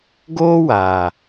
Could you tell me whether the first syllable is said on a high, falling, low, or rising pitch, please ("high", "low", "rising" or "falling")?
high